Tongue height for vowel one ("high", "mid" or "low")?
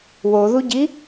mid